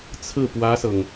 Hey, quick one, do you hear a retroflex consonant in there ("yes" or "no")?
no